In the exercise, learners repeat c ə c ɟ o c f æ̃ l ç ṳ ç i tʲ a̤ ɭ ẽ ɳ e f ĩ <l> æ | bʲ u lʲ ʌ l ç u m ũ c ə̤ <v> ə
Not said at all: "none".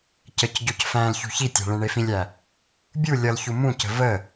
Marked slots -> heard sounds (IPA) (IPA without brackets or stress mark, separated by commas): lʲ, v